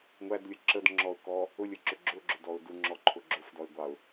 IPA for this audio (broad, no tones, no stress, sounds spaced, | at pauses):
ŋʷ æ d lʲ ə ǁ ə d ŋ͡ǁ ɔ ʊ̯ k ɔ | ʊ lʲ ə ǁ ʊ ɡ͡ǁ ʊ ɡ͡ǁ ʊ d ɔ ʊ̯ d u ŋ͡ǁ ɔ ǃʰ ʊ ɡ͡ǁ ʊ f d ɔ ɪ̯ ɡʷ ɑ ʊ̯